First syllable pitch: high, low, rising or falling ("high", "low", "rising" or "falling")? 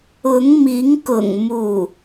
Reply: rising